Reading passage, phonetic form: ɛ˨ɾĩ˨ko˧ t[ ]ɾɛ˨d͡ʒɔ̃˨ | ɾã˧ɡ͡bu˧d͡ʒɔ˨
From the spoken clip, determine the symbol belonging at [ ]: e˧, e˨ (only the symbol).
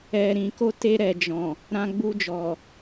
e˧